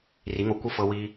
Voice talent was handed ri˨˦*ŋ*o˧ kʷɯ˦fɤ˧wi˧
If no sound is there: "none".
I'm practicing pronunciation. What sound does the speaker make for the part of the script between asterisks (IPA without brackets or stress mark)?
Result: ŋ